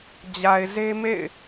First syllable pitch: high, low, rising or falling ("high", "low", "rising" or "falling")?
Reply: low